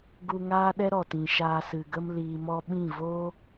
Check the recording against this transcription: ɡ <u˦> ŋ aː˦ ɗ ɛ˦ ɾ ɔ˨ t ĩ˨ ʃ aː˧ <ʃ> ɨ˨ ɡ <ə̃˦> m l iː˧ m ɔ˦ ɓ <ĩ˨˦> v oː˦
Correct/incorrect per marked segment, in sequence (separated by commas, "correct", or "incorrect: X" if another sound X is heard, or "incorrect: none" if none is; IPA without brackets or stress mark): correct, incorrect: s, incorrect: ə˦, incorrect: ĩ˦˨